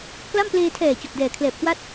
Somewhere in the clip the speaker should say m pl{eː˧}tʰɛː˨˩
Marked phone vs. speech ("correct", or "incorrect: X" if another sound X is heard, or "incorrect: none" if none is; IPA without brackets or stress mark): correct